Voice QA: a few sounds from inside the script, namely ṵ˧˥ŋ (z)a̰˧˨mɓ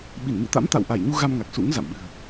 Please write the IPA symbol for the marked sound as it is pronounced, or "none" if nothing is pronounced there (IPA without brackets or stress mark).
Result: z